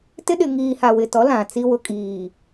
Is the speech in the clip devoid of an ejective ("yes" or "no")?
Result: no